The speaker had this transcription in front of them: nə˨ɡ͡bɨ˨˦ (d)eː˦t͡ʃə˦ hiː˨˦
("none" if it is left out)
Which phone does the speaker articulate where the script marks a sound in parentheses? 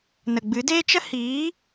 d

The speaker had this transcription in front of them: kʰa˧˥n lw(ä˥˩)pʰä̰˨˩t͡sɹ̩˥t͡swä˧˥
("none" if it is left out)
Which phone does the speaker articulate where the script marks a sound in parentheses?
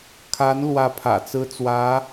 ä˥˩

